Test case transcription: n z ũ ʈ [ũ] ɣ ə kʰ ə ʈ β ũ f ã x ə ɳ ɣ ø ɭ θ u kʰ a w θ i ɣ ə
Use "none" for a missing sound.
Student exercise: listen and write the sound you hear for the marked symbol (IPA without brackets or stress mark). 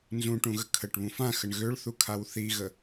ũ